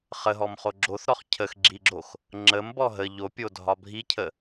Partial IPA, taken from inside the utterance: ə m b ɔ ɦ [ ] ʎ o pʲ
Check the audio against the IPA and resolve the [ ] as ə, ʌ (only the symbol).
ə